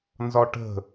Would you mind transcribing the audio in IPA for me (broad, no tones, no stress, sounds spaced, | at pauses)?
n z ɒ ʈ ə̤